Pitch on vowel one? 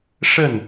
falling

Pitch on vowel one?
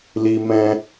high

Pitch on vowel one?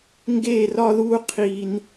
falling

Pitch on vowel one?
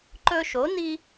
high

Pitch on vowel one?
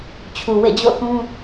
low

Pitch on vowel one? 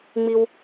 high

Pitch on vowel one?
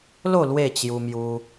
falling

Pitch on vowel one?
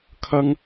high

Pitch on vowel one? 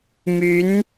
rising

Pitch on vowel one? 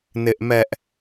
high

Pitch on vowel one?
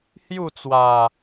falling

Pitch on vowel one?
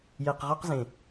low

